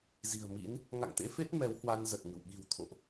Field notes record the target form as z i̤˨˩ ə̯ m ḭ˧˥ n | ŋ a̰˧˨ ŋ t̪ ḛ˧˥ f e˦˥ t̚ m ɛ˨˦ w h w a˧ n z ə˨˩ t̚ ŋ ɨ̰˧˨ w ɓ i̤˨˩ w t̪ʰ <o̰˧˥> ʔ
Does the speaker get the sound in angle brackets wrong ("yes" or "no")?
yes